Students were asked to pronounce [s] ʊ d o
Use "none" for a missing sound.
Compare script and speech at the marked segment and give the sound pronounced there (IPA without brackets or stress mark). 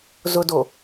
z